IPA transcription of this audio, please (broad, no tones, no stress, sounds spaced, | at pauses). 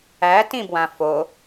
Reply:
æ t ĩ b w ã f o